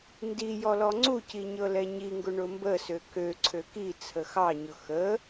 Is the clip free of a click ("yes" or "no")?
no